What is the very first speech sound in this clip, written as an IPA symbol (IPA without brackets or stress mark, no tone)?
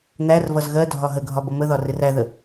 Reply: n̪